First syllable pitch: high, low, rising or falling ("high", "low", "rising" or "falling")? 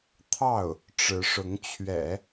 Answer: falling